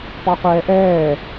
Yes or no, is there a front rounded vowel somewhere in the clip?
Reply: no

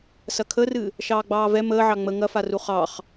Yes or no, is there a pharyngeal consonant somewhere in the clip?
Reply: yes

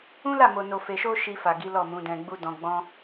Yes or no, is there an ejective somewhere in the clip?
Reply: no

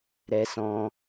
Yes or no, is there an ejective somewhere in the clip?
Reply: no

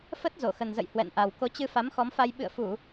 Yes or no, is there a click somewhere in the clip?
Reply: no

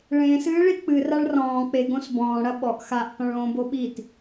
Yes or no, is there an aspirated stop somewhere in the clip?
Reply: no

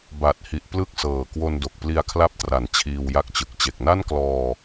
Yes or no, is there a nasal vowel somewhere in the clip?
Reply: no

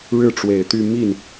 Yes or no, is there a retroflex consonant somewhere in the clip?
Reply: yes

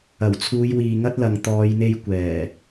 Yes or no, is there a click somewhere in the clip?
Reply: no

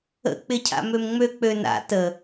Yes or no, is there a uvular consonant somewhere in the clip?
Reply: no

